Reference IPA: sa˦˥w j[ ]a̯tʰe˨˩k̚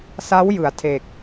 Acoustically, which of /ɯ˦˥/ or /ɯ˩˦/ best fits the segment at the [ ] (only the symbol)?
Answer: ɯ˩˦